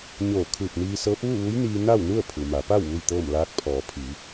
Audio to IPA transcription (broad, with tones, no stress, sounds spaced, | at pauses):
ɲ oː˧˩ kʰ ɯː˧˩ p̚ n iː˧ s ɤː˧˥ p̚ ʋ u˥˨ ʋ u˧˥ j n iː˧ n a˥˨ w n u˥˨ ə̯ pʰ u˩ m a˩˧ p a˥˨ w ʋ u˥˨ j t̪ ɤː˥˨ m l aː˧˥ k̚ pʰ ɔː˩˧ pʰ i˩˧